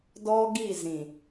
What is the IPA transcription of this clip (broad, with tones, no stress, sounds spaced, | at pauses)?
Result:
d ɔ˦ ɡ i˦˨ z ĩ˨